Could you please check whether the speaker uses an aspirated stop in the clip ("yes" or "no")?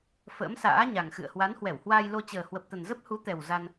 no